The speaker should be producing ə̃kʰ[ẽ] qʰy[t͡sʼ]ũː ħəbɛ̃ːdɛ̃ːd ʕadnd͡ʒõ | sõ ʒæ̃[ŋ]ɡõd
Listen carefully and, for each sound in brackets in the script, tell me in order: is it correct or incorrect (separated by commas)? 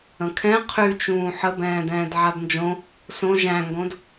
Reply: incorrect, incorrect, correct